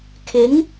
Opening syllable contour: rising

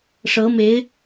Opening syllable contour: rising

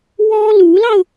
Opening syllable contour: high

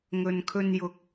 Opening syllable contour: low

